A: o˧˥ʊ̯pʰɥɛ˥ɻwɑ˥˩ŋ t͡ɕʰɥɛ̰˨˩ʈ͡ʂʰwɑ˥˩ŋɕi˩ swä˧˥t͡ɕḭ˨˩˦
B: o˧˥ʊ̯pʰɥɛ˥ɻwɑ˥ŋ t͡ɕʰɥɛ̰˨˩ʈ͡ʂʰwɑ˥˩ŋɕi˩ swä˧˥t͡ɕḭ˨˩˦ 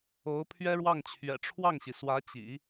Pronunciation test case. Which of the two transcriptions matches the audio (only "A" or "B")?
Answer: A